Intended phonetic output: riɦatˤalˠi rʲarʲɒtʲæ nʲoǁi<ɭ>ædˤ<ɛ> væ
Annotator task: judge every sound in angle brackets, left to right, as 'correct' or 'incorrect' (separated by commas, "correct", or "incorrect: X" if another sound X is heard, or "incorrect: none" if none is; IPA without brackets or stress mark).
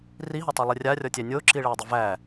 correct, incorrect: ʏ